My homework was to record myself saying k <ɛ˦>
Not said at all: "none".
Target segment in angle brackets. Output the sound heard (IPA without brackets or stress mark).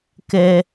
ɛ˦